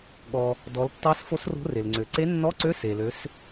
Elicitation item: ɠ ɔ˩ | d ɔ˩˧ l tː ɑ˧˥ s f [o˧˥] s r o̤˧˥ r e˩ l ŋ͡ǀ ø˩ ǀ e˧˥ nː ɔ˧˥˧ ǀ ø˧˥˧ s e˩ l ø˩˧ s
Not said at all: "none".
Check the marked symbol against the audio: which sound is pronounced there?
o˧˥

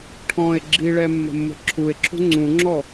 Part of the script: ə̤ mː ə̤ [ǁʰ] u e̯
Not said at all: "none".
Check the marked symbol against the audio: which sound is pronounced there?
ǁʰ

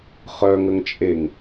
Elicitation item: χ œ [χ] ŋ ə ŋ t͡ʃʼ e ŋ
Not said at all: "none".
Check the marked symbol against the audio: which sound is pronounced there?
none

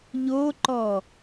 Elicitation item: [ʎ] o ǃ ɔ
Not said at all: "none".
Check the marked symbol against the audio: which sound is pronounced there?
ʎ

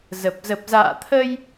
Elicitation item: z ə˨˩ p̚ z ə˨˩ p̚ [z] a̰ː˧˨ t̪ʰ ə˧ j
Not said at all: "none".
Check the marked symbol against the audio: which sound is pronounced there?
z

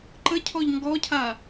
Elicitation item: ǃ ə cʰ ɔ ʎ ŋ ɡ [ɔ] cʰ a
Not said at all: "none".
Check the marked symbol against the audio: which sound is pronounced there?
ɔ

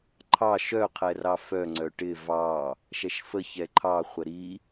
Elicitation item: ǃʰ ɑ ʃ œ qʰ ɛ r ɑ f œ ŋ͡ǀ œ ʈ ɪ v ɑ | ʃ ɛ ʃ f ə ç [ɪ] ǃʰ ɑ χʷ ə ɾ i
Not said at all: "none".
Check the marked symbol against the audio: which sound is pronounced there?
ɛ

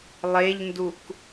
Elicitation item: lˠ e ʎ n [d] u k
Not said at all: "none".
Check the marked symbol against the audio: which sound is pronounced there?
d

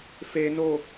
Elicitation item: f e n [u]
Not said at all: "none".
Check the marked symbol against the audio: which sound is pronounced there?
o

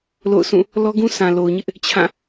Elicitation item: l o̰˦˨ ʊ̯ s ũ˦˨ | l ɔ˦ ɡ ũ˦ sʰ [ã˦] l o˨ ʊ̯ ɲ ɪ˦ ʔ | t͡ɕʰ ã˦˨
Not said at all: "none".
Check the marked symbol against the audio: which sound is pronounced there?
ã˨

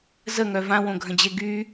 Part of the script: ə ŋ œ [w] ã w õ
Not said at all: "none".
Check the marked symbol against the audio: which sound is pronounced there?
v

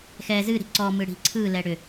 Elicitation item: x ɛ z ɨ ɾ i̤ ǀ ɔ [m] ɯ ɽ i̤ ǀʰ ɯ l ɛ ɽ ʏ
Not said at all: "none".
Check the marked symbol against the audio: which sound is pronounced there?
m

